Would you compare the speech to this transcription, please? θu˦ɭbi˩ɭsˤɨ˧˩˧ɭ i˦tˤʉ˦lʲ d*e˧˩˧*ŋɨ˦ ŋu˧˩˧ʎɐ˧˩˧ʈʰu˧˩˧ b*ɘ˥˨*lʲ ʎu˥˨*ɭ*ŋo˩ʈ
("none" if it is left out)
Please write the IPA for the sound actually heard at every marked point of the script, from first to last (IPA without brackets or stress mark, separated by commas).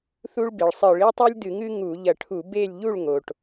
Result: ɨ˧˩˧, e˥˨, ɭ